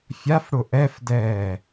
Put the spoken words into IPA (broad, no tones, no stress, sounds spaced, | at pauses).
fʲ a f ɽ ʊ ʔ ɛ f d ɛː